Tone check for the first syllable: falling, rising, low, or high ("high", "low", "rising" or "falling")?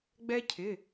high